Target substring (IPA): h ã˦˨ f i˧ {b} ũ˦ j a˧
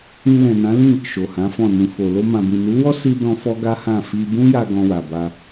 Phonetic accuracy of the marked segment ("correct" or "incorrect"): correct